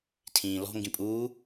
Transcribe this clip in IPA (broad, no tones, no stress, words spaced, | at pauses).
tʰĩːlɔ̤ ŋɡĩpʼuː